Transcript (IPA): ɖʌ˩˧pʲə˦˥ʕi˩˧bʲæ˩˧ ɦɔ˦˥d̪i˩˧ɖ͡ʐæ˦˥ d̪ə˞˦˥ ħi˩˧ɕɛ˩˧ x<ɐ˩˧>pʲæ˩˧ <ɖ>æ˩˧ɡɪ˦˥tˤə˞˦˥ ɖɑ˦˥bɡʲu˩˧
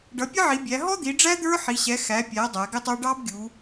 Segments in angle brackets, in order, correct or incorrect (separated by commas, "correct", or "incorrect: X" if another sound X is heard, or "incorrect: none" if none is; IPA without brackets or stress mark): incorrect: æ˩˧, incorrect: dˤ